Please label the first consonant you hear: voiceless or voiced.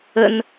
voiced